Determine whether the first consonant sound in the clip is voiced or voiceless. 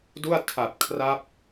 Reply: voiced